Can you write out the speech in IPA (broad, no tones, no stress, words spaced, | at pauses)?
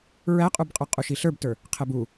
ɹæqʼubqʼə˞ qʼuʃiɬə˞btə˞ | qʰɛbu